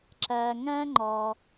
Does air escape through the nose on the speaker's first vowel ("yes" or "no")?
no